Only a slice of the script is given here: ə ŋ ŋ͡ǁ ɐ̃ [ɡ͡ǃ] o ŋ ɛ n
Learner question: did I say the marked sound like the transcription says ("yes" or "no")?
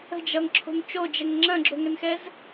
no